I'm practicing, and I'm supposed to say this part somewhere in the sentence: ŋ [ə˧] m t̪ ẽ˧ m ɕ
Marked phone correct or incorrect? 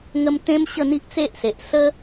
correct